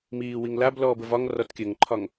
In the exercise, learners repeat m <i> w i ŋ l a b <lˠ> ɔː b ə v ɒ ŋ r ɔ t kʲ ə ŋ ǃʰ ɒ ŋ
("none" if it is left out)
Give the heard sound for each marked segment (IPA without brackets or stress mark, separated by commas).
iː, l